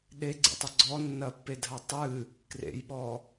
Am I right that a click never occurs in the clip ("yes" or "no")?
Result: no